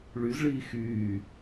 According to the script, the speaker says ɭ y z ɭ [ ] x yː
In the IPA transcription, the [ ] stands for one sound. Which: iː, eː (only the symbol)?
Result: iː